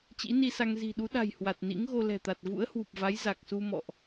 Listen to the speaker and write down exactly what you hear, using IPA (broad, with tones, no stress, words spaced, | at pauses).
t͡ɕḭ˧˥ni˧sa˧ŋ zi̤˨˩ɗu˨˦ɗa̤˨˩j hwa˨˩t̚nḭ˧˥ŋɣo˧ lɛ̤˨˩t̪a˨˩t̚ vṵ˧˥ə̯hwu˨˩p̚va˨˦j za˨˩k̚su˧ mɔ̰˧˨ʔ